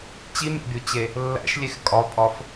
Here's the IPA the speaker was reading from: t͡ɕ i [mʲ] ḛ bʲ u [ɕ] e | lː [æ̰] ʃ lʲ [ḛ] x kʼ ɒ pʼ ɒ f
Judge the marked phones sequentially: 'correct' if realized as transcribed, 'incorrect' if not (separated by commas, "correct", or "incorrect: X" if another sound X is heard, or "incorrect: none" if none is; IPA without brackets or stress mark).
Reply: correct, incorrect: t͡ɕ, correct, incorrect: e